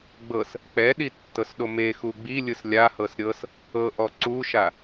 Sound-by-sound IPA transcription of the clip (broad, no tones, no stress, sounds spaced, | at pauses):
ɡ͡b ɤ s | k͡p ɛ ɗ i tː ɤ s ɗ o m e x u ɡ͡b i lʲ ɯ s lʲ a h ɤ s ɾʲ ɤ s | ɤ ʔ ɔ ǀ u ʃ a